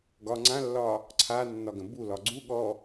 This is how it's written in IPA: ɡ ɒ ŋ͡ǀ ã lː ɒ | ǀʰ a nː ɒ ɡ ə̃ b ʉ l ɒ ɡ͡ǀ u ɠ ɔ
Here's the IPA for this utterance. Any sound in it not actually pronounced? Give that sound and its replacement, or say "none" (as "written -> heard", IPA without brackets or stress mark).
ʉ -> u